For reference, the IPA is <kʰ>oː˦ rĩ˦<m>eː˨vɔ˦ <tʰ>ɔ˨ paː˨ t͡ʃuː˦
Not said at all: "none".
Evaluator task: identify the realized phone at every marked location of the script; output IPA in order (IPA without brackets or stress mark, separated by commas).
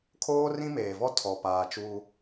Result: kʰ, m, tʰ